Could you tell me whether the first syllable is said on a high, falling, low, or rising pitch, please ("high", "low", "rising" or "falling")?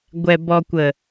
low